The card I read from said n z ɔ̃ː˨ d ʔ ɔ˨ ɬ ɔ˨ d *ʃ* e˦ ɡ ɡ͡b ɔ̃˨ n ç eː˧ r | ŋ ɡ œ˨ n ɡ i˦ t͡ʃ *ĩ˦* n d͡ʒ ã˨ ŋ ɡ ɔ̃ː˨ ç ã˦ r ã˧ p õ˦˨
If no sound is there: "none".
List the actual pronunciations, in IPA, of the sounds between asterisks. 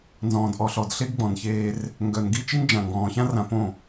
ɬ, i˦

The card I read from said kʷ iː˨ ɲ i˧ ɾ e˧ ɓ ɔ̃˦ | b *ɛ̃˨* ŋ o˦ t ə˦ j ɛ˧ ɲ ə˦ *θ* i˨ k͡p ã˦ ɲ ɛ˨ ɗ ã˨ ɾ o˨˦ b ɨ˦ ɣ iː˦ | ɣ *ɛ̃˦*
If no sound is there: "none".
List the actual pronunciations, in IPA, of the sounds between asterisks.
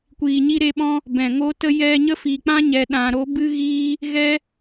ɛ̃˨, f, ɛ˦

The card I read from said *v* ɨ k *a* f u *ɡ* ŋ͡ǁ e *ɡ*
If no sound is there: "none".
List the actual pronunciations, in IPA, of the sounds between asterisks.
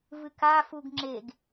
v, a, ɡ, ɡ

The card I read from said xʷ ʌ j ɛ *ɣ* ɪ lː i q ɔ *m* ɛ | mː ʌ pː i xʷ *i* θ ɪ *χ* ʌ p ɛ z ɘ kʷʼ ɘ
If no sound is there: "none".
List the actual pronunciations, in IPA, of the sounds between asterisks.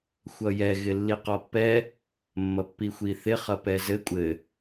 ɣ, pː, i, χ

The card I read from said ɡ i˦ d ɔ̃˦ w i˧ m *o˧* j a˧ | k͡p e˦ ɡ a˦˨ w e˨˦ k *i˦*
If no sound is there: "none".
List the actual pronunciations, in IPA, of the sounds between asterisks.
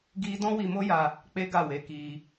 o˦, i˧

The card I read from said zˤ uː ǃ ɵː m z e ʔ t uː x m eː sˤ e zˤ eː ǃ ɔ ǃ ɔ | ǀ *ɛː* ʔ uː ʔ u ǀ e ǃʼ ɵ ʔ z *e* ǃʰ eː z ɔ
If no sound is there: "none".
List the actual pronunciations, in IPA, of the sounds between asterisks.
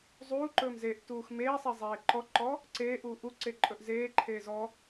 eː, eː

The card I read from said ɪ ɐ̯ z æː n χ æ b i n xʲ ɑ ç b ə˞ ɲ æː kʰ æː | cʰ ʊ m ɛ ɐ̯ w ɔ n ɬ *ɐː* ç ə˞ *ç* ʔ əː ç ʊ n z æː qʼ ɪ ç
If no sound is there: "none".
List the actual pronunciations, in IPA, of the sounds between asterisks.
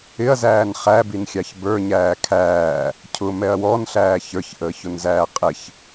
æː, ç

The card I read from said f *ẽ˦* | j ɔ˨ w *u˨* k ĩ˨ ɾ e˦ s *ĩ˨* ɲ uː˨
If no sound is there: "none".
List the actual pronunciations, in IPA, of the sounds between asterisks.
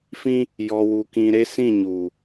ĩ˦, u˨, ĩ˦˨

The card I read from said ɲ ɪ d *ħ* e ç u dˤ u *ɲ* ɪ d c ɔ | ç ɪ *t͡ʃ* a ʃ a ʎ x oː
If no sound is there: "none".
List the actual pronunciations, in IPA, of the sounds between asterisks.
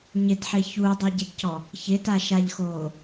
ħ, ɟ, t

